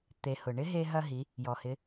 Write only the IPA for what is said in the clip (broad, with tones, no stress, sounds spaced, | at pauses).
t̪ e˩˧ h ʊ˩ ɳ ɪ˧˥ ɦ e˧ ɦ ɐ˧ ɦ i˩˧ | j ɔ˩ h ɪ˩˧